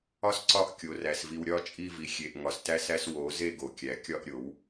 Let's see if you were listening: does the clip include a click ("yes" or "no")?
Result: yes